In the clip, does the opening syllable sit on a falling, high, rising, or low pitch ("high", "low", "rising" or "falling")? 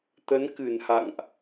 rising